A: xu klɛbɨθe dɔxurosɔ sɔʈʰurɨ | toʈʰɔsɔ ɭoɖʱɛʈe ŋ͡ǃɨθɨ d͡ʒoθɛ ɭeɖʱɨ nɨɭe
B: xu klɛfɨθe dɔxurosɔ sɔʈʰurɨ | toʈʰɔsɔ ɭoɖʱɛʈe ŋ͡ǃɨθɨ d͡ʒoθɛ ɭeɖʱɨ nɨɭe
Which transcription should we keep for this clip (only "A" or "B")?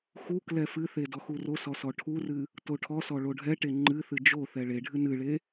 B